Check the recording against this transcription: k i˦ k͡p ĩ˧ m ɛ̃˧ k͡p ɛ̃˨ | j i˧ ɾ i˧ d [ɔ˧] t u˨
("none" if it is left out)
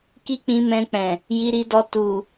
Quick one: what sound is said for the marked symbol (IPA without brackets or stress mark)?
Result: ɔ˧